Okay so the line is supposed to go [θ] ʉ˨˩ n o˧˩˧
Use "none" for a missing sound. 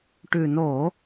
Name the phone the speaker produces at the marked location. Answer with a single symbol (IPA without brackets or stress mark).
ʈ